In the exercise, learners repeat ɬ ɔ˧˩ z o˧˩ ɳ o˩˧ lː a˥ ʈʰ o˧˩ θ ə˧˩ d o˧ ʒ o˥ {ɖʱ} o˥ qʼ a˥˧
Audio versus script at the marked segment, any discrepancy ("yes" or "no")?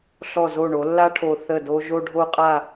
no